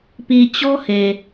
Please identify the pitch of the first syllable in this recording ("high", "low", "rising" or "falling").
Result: low